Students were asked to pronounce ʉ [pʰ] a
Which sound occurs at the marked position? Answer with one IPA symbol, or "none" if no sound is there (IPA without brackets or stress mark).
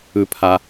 pʰ